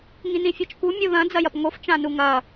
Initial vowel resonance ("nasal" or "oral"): nasal